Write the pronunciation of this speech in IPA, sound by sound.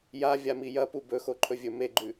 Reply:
j a vʲ a m i j ɐ p u b ɵ x o ǃʰ ɵ vʲ ɵ m e ɡ͡ǃ ʉ

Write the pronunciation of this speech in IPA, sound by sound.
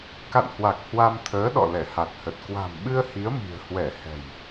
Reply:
k a̰˧˨ n h w a˨˩ k̚ h w a˧ m t̪ʰ əː˨˦ ɗ ɔ̰˧˨ l ɛ˧˩ h a˨˩ t̚ h ə˨˩ t̚ k w a̤˨˩ m ɓ ɨ˧ ə̯ h i˨˦ ə̯ m i̤˨˩ ə̯ h w ɛ˧˩ h ɛ̤˨˩ j

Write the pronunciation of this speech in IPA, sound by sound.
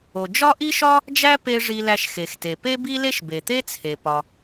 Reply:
o˩ d͡ʒ ɒ˥ ʔ i˥ ʃ ɒ˥ | d͡ʒ æ˥ p e˧ ʐ i˧ l æ˧ ʃ x e˩ x t e˩ p e˥ b i˥ l e˥ ʃ b e˩ t̪ e˥ t͡sʰ e˩ p ɒ˩

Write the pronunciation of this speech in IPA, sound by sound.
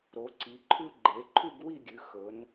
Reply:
ɾ o˩˧ ǀ i˩˧ ǃʰ ʉ˥ ɡ͡ǃ e˩˧ ǃʰ ʉ˥˧ ɡ w i˥˧ ɡʲ ʉ˩˧ x ɵ˩˧ n

